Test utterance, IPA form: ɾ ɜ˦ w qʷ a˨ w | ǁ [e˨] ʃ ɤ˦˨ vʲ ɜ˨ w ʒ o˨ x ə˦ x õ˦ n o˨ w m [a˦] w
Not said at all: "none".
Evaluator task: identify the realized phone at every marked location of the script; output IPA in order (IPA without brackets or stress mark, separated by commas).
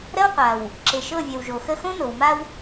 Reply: e˨, a˦